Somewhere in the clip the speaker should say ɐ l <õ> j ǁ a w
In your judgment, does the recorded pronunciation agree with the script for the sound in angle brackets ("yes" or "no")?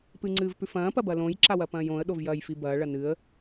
yes